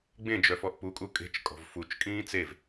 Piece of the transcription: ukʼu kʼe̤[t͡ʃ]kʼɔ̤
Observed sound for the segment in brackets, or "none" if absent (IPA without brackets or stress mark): t͡ʃ